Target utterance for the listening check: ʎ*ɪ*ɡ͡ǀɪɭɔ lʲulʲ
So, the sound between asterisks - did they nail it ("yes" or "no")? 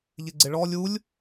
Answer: yes